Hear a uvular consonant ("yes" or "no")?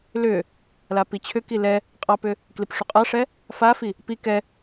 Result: yes